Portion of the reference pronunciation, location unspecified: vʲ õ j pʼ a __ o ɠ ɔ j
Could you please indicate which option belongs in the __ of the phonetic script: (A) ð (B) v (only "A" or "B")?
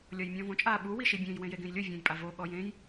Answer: B